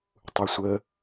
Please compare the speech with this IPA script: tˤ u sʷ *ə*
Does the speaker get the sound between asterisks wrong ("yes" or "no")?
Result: no